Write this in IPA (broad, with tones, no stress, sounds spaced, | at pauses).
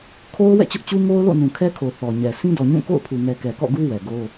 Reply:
kʰ o˦ ʊ̯ w ɛ̰˦˨ t͡ɕ ʊ˦ ʔ t͡ɕ u˦ ŋ o˦ ʊ̯ l o̰˦˨ n ũ˨ kʰ ɛ˦ kʰ o˨ θ ɔ˨ ɲ ɛ˨ s ĩ˦ d ɔ˨ ɲ ũ˦˨ k o̰˦˨ ʊ̯ pʰ u˨ ŋ ɛ˨ k ɛ˨ k ɔ̰˦˨ ɡ u˦ w ɛ˨ ɡ o˦